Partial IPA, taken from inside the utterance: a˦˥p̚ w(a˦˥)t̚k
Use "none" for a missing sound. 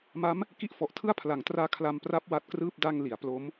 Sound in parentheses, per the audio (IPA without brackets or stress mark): a˦˥